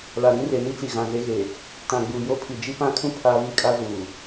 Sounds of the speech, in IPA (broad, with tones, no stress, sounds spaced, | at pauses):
l a˨ ɾ ĩ˦ r e˨ n i˦ t͡s i˨ ɣ ã˨ z e˦ ɣ e˨ | t ã˨ ɡ͡b uː˨ j o˦ pʰ i˨ d͡ʒ i˦ p ã˦ kʰ ũ˦ pʰ a˦ β i˦ kʼ a˦ z uː˨